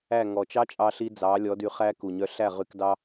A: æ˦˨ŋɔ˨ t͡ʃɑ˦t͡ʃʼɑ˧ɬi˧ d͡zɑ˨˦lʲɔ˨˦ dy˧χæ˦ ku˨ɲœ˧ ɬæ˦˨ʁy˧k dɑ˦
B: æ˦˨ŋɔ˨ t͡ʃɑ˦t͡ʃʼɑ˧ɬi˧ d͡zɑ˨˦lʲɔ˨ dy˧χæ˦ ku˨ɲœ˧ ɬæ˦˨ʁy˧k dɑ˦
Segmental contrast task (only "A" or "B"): A